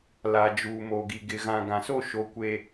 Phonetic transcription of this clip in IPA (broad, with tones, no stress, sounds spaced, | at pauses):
l a˨ d͡ʒ uː˨ m o˨ ɡ i˨ ɡ ɪ˨ ɣ ã˨ ɡ ã˨ s o˦˨ ʃ o˨ kʷ e˨